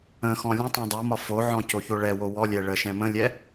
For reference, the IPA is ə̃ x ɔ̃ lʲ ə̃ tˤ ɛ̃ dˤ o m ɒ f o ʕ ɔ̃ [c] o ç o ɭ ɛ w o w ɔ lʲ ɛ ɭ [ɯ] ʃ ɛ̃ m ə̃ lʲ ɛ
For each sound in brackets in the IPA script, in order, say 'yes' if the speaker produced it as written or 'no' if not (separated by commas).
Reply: yes, no